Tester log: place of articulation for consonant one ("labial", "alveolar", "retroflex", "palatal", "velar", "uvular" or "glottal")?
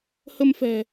glottal